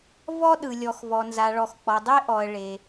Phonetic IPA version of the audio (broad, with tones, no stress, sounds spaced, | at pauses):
v ɔ˧ ɗ ɯ˩ lʲ ɔ˩ x v ɔ˩ n z a˩ ɭ ɔ˩ x k͡p ɔ˩ dˤ e˧ ʔ ɔ˩ ə̯ ɭ e˩